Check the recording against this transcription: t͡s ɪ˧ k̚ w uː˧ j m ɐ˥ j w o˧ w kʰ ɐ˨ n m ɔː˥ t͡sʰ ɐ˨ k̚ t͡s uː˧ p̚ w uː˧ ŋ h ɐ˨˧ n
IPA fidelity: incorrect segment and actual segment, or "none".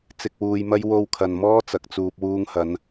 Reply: t͡sʰ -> t͡s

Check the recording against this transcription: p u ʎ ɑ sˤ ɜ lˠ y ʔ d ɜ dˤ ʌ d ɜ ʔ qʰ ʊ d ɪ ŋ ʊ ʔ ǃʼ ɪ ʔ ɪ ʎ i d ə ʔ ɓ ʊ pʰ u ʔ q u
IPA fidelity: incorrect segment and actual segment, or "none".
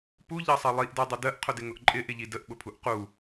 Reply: y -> i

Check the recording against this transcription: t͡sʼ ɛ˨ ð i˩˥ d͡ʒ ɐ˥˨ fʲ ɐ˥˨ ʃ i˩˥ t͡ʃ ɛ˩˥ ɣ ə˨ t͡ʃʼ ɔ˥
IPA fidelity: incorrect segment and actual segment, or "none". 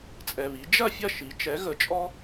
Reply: ð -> β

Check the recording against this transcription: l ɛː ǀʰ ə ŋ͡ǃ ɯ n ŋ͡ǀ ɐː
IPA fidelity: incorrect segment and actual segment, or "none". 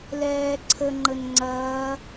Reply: ɯ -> ə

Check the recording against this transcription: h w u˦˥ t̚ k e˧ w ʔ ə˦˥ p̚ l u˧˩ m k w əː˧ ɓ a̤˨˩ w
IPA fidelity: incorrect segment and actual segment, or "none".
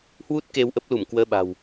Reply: none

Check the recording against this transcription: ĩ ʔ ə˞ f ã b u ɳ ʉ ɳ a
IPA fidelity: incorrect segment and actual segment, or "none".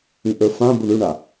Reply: none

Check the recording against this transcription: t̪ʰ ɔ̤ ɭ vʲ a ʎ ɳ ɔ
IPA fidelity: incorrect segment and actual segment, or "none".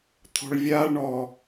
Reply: ʎ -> ɭ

